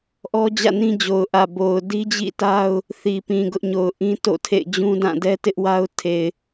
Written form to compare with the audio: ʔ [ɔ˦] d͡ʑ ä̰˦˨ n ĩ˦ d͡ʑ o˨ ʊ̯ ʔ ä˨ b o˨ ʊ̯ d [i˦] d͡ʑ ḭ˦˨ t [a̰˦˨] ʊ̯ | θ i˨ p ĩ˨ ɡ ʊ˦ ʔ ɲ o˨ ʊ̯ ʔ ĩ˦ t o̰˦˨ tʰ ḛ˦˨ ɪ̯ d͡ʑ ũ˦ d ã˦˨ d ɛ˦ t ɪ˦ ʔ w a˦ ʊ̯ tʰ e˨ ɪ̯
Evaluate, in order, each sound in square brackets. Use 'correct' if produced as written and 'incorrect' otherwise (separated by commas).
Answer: correct, correct, incorrect